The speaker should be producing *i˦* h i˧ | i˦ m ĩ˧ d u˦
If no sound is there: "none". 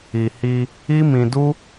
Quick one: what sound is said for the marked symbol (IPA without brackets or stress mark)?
i˨